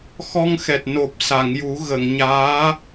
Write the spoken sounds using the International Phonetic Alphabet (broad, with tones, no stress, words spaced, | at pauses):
xɔ˧ŋxɛ˨˩t̚ no˨˩p̚sa˨˩˨ŋju˨˩˦ ɣə˨˩˨ŋɲaː˧˥